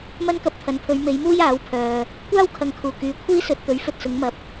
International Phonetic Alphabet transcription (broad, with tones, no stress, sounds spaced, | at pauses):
m ɐ˥ n k ɐ˧ p̚ t̪ʰ ɐ˨˧ n pʰ ɵ˨˧ ɥ m e˨˧ j m uː˥ j aː˨˥ w pʰ œː˨ | kʷ aː˥ w kʰ ɐ˨ ŋ kʰ uː˨˩ k yː˨ kʷʰ iː˥ s ɵ˨ t̚ t̪ ɵ˨˥ ɥ f ɵ˨ t̚ s ʊ˨˧ ŋ m ɐ˨ p̚